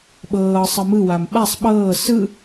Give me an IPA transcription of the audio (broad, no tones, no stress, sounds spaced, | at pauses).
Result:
ɓ ɤː sˤ ɤ m ɯ w a m ɓ a sˤ ɓ ɤː s ɯ